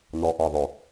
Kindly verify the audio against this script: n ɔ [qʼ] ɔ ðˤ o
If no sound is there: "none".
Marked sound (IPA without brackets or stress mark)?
ʔ